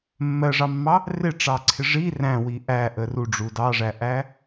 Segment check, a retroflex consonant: present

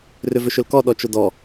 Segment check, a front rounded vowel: present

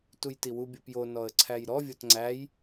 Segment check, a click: present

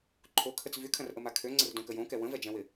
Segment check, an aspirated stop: present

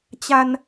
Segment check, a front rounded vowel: absent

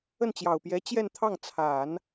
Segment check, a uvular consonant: absent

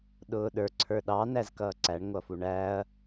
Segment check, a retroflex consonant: present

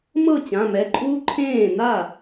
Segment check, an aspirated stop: present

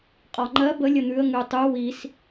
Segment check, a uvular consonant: present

